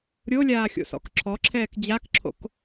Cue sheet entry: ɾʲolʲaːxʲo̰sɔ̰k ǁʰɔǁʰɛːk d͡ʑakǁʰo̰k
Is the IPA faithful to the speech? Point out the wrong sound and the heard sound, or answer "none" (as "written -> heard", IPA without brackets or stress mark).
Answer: none